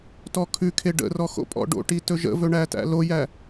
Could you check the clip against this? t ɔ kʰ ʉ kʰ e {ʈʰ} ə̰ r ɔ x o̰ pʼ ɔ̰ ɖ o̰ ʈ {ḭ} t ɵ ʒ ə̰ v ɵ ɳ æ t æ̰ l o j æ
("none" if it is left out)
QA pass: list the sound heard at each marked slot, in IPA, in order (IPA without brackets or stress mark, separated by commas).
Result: ɖ, i